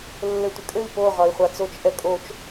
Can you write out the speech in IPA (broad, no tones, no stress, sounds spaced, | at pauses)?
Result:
lː ɘ tʷ ɘ kʼ ɘ i̯ p o ʁ ɒ i̯ χʷ a t͡s o t͡ʃ ʔ ɛ kʼ o t͡ʃ